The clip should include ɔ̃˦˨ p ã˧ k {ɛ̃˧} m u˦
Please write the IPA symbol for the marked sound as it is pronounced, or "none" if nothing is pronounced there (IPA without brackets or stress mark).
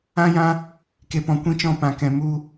ɛ̃˧